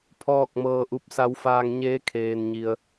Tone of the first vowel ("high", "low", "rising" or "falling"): falling